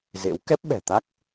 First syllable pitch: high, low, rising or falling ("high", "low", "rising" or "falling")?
rising